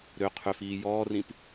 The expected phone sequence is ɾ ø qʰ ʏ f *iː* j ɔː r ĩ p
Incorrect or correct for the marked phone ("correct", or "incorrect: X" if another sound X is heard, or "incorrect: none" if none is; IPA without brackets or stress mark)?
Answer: correct